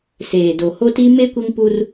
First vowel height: mid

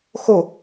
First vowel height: mid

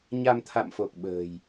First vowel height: low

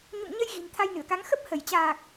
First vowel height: high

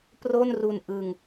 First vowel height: mid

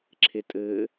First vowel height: mid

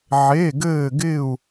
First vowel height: mid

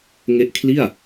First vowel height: mid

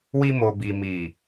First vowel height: high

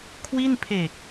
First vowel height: high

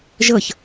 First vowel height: mid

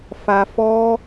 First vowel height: low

